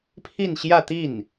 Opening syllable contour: falling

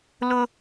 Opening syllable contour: high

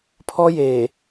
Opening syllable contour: high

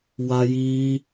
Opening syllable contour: high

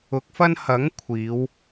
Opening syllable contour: rising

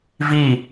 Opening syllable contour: falling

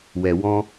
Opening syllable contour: low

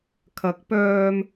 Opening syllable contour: rising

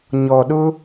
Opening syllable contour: low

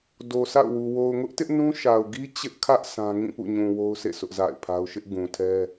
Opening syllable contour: low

